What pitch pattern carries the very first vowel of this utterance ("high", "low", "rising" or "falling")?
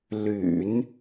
low